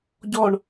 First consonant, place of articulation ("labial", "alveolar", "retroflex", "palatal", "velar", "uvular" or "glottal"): palatal